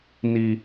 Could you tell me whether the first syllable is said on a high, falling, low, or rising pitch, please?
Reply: high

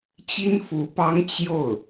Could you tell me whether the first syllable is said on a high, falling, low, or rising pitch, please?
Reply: high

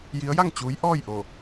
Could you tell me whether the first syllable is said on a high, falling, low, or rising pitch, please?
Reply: rising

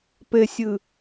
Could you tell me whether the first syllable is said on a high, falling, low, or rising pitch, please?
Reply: low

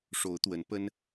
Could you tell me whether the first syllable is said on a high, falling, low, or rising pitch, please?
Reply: rising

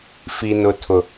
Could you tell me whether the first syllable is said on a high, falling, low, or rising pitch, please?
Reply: low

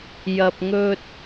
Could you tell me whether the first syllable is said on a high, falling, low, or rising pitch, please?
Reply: low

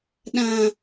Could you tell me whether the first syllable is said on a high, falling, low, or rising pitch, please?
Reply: high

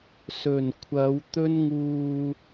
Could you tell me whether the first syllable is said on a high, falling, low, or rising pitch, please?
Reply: low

